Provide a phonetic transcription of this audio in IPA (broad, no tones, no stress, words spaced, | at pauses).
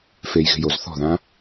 fejɣe̤joz θɔ̤ðã